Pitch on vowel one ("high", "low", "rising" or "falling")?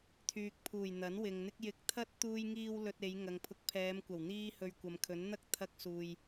low